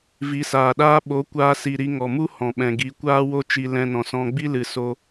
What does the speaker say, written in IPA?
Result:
vi˨˦saː˨ɗaː˦ ɓo˨˦kʷaː˧si˨ɾi˧ ŋɔ˨mu˦ hɔ̃˨ɓɛ̃˨ɡi˨˦ kʷaː˦wo˦ t͡ʃi˧lɛ̃˧nɔ̃˨sɔ̃˧ ɡ͡bi˦lɨ˨ so˦

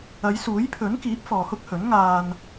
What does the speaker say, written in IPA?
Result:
ɐ˨˧jsuː˨˥jpʰɵ˨˥nkiː˨˥p̚ fɔː˨hʊ˥k̚hɵ˨˥n ŋaː˨n

